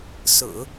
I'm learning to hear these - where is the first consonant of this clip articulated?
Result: tongue tip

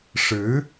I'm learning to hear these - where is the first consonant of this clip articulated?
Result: retroflex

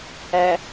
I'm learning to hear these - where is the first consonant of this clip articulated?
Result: throat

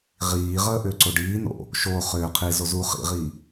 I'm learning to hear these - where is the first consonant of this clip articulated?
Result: uvula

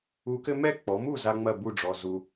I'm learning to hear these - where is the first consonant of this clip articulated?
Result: velum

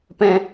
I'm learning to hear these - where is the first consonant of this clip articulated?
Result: lips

